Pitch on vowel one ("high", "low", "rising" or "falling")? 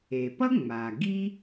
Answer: low